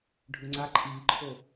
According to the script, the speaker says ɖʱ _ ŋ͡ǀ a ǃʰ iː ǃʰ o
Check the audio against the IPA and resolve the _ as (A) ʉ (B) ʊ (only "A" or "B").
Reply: A